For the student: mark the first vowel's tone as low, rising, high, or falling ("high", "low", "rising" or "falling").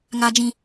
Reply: high